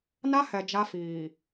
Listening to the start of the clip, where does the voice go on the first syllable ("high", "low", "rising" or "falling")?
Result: high